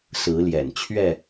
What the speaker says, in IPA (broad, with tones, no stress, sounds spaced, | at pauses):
s ɹ̩˨˦ l j ɛ̰˨˩ n t͡ɕʰ ɥ ɛ˥˨